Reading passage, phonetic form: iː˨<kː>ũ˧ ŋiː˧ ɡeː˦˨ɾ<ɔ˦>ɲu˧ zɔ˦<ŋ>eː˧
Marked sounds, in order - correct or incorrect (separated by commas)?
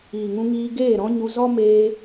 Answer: incorrect, incorrect, incorrect